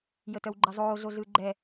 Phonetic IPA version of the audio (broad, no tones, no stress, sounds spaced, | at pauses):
j ə t œ w ɡ͡ǃ e zˤ oː ɮ o ɮ ɯː ɡ͡ǃ ɛ